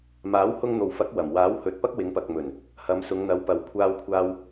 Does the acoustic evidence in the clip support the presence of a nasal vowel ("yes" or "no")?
no